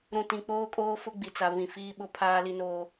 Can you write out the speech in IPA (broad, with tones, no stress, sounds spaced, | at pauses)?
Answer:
ɾ ũ˨ t ĩ˨ k͡p oː˦ kʼ oː˦ f ʊ˦ ɡ͡b i˨ t͡s a˨ β ĩ˨ f iː˦ ɓ ʊ˦ pʰ aː˦ l i˦ n oː˦